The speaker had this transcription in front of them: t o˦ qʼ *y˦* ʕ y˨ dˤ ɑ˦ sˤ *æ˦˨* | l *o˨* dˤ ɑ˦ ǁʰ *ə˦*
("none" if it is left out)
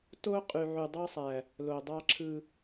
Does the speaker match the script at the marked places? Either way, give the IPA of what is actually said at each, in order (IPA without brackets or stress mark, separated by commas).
y˨, æ˨, o˨, ɯ˦